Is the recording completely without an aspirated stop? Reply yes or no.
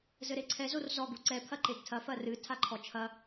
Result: no